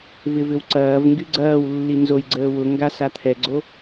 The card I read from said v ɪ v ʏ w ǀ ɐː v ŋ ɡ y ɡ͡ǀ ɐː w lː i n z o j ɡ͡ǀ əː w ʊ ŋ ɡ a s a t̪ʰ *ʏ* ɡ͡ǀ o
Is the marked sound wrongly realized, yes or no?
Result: yes